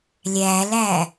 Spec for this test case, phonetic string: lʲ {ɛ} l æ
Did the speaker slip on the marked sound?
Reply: yes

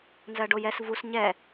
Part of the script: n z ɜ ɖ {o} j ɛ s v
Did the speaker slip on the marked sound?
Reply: no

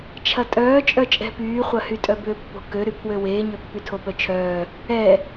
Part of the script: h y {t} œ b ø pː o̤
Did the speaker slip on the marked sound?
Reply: yes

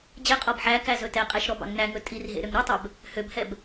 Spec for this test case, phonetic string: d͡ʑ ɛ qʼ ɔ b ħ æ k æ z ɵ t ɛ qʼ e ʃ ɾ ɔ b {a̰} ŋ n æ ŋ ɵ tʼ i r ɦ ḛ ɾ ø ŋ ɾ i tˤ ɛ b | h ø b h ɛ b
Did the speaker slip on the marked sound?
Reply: yes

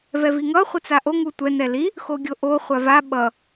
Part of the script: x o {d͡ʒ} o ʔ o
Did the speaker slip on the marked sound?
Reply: yes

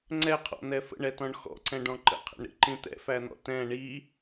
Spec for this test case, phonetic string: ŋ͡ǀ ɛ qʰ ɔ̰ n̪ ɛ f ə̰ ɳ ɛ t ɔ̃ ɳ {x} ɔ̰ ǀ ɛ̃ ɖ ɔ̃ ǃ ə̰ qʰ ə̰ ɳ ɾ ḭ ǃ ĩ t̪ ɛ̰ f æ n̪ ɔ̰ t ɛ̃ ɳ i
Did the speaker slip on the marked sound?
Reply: no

